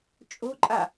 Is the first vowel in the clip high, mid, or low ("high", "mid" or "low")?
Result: mid